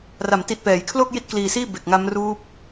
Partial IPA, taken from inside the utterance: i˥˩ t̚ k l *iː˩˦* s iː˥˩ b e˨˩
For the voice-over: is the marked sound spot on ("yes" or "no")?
no